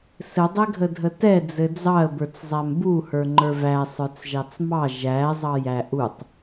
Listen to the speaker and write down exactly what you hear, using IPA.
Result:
s ɘ dˤ ɘ ɡʱ ə dʱ ə t ɛ d͡z ɘ d͡z ɑ ə̯ b ə˞ t͡s zˤ æ m b u h ə˞ ŋ͡ǃ ə˞ v æ sˤ ə˞ t͡s ʒ ɑ t͡s m ɑ ʒ æ zˤ ɑ j æ ʔ u tˤ

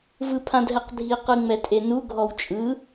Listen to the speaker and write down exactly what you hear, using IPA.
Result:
v ɯ pʰ ã d ɦ ɛ q dʱ i q ɯ ŋ͡m ɛ tʼ e n u ɡʱ ɔ w t͡ʃʼ ɯ

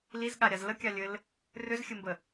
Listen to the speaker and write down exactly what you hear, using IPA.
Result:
l i z ɠ a ɾʲ a z l ə kʲ a lʲ ɘ l | r ʏ z xʲ ɘ m b ə

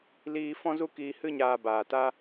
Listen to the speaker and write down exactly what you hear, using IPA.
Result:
l iː˧ f ɔ̃˦ z u˦ k iː˧ h ɨ˧ ɲ aː˨ b aː˨ t a˦

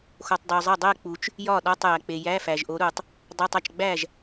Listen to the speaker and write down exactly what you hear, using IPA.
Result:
x o˨ tˤ dˤ o˨ zˤ e˥˩ dˤ e˥˧ k͡p u˨ t͡ʃ | j ɒ˥˩ ɗ ɒ˧˥˧ tˤ j æ˨ k͡p e˨ j æ˧˥˧ f æ˨ ʒ ʔ o˨˥ ɾ u˨ tˤ | dˤ æ˧˥˧ tˤ æ˨ t͡ʃ ɡ͡b æ˥˩ ʒ

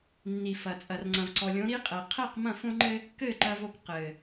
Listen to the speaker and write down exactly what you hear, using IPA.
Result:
nː i˨ f ɐ˨ t͡sʼ ɐ˨ r ŋ͡ǀ ɐ̃˨ v ǀ ɔ˨ lʲ õ˨˦ ɾ i˦ qʼ ɛ˨ qʰ ɛ˦˨ q m ɐ̃˦˨ f õ˦ ŋ͡ǃ ɘ˦ | k ɘ˦˨ ǃ ɐ˦ v o˦ k q ɘ˨

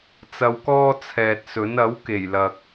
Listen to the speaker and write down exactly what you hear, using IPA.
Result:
t͡s ɐ˧ w k ɔː˥ t͡sʰ ɛː˨ t̚ s ɵ˨˥ n ɐ˨˥ w k e˨˩ j l ɐ˨ k̚

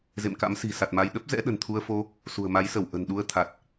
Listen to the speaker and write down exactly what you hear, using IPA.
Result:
z ḛ˧˨ m k a̰˧˥ m s i̤˨˩ s a˨˩ t̚ m a˧ j ɗ ə˦˥ p̚ z ɛ̰˧˥ ɗ ə̤˨˩ n t̪ʰ u˧ ə̯ f o˧ | s ṳ˨˩ ə̯ m a˨˦ j s ə˧˩ w ʔ ə̤˨˩ n ɗ u˧ ə̯ t̪ʰ a˨˩ t̚

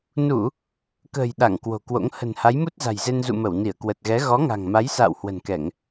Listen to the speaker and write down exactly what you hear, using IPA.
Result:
n u˧˩˨ | k ə̤ː˨˩ j ɗ a˧˩ ŋ k w o̤˨˩ k w o̰˧˥ ŋ h ə̤˨˩ n h a˨˦ j m u˦˥ t̚ z a̤˨˩ j z e˧ n z ṵ˧˨ m ə˧˩ w n i˧˩ ə̯ k w ə˨˩ t̚ ɣ ɛ˨˦ ɣ ɔ˨˦ ŋ a̤˨˩ ŋ m a˨˦ j s a̰ː˧˨ w h w ə̤˨˩ n k ɛ˧˩˨ ŋ

